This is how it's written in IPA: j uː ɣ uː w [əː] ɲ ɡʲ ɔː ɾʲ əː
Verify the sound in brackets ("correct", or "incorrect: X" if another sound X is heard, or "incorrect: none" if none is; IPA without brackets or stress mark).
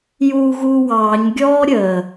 incorrect: ɑː